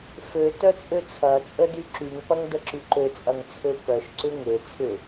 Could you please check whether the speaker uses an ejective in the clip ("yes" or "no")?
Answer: yes